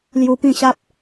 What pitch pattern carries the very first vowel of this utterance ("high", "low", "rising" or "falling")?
high